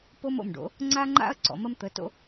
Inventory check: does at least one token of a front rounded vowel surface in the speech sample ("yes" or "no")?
no